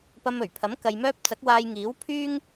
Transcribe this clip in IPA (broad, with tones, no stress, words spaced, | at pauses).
pɐ˧mɵ˨˩ɥpʰɐ˨˥m kɐ˧jmœː˥p̚ t͡sɐ˨˥k̚waː˧jŋiː˨˥w pʰyː˥ŋ